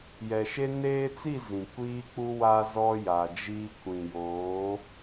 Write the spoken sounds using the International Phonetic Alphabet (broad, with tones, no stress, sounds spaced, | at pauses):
j ɛ˨ ʃ e˦ n eː˦ t͡s i˦˨ z ĩ˨ kʷ iː˦ k͡p u˦ w aː˦ z ɔ˦ j a˨ d͡ʒ iː˦ kʷ ĩ˨ j oː˨˦